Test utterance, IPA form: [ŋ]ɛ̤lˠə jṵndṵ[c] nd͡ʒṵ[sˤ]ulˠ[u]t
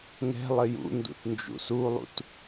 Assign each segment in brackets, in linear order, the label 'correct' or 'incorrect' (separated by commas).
correct, incorrect, incorrect, incorrect